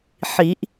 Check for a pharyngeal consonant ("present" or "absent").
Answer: present